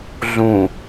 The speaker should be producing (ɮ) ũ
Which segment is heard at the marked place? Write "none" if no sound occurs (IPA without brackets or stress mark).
ɮ